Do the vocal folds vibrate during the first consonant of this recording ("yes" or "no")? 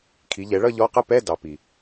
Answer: no